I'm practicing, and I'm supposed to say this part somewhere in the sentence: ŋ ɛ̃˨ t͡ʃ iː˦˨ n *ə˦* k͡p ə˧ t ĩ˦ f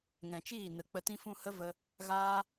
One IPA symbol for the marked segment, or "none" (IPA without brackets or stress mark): ə˨